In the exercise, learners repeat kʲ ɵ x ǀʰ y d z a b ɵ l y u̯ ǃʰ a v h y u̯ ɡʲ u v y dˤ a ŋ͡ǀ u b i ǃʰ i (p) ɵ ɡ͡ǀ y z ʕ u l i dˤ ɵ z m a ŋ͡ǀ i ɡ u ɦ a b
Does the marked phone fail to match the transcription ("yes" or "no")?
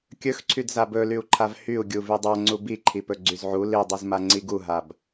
no